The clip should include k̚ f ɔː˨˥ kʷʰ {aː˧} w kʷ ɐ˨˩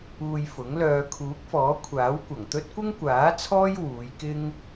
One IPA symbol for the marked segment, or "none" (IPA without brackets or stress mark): aː˨˥